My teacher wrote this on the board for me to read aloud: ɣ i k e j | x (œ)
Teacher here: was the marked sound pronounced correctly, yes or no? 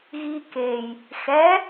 no